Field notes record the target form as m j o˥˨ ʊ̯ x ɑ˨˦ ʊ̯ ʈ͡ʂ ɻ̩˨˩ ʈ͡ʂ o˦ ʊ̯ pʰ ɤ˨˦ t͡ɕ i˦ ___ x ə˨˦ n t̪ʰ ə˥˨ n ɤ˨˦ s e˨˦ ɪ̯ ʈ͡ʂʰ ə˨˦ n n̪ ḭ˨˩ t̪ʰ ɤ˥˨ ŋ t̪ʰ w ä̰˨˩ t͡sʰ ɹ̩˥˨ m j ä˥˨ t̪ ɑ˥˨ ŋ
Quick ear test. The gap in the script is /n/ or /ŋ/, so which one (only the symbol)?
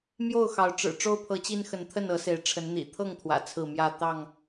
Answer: n